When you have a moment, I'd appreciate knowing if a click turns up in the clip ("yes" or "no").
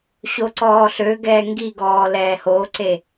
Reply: yes